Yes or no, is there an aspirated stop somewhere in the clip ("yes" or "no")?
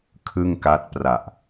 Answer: yes